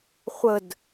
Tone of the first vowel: falling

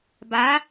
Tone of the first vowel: rising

